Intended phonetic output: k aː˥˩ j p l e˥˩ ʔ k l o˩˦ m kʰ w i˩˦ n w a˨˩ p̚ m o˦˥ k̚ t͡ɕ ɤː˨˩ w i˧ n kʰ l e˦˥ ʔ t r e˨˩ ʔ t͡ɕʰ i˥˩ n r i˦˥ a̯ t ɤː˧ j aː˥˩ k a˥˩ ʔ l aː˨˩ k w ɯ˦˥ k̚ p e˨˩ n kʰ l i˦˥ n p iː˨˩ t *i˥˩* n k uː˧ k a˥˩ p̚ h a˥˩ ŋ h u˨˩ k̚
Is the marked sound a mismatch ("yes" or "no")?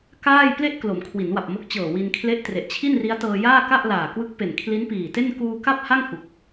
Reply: yes